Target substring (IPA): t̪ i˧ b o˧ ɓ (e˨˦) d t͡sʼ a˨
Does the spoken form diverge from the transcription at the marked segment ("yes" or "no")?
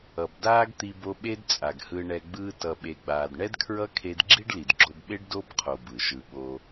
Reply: yes